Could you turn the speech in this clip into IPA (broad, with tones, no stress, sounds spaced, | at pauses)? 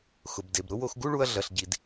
x ʊ˩ b d e˩ b ɾ ʊ˥ w o˧ x ɡ u˥ ɭ u˧ ɐ̯ ɮ ɐ˩ ɬ ɟ i˩ d